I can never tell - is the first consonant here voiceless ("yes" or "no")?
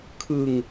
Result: yes